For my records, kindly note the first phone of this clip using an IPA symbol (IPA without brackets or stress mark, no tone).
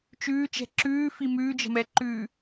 t͡ʃ